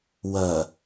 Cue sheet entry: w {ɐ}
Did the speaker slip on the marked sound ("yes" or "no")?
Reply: no